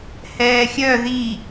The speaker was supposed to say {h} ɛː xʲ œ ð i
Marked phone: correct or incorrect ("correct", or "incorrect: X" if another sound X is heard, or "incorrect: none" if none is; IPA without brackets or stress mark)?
correct